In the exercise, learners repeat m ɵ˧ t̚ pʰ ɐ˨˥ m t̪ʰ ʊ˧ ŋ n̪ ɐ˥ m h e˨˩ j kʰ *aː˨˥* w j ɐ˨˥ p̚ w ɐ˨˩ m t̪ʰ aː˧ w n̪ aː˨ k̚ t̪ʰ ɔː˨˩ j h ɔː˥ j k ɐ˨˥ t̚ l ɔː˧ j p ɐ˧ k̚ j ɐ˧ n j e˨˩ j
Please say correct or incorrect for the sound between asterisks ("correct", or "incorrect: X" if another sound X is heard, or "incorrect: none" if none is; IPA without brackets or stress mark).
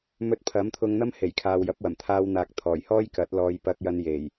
incorrect: aː˨